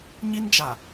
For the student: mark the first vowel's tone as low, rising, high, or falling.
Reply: high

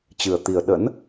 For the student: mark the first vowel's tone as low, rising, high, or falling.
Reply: low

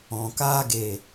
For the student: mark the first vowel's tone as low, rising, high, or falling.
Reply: low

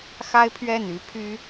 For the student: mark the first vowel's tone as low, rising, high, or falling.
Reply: high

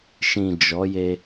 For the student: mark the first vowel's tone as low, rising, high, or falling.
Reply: low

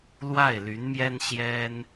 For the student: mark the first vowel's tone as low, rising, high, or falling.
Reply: falling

